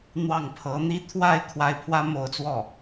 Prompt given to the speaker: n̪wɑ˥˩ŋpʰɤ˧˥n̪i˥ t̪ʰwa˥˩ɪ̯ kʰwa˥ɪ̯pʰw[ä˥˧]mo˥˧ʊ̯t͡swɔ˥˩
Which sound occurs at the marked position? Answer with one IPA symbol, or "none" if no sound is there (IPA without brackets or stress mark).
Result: ä˥